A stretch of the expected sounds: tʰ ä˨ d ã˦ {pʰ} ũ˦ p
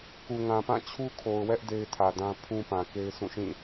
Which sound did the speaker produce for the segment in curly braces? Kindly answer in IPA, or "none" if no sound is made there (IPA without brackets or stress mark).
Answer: pʰ